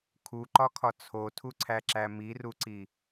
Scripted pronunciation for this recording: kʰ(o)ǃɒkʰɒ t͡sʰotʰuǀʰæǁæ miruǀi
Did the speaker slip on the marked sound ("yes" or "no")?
yes